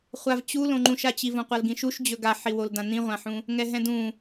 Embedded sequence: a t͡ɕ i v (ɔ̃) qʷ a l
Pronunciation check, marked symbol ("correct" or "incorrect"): incorrect